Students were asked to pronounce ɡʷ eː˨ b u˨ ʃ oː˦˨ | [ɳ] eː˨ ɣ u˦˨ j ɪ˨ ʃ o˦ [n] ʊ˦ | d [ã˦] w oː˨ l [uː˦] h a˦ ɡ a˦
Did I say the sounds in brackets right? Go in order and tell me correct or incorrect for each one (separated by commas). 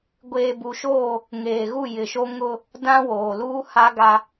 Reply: incorrect, incorrect, correct, correct